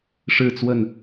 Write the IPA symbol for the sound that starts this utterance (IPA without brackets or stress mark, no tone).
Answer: ʂ